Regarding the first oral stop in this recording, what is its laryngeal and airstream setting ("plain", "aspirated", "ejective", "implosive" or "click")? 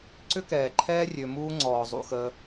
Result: click